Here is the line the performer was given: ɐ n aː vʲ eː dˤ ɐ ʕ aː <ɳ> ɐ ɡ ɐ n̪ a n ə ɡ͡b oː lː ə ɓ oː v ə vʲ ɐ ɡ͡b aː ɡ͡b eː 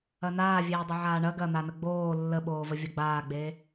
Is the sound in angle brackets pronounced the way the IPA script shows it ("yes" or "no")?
yes